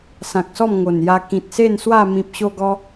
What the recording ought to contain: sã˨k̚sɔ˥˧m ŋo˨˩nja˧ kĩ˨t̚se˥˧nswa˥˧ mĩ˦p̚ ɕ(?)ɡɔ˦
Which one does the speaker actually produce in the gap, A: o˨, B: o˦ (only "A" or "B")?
B